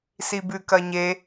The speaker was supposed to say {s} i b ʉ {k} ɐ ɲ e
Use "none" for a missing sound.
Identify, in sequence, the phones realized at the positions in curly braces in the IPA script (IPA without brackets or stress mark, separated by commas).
s, k